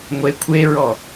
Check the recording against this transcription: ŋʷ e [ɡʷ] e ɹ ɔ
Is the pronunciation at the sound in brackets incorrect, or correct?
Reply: incorrect: kʷʰ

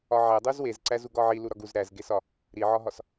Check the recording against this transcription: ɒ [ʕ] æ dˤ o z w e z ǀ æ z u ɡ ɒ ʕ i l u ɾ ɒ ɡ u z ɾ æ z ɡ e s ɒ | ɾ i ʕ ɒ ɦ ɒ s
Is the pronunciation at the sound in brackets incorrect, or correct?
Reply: correct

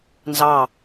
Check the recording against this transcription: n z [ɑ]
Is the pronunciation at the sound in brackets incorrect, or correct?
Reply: correct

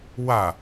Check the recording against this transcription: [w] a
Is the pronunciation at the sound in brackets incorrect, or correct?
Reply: correct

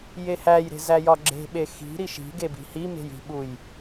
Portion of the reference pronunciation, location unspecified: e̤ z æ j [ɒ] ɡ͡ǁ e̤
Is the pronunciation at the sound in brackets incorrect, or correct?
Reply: correct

